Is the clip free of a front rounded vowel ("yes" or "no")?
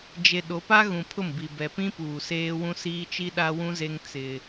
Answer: yes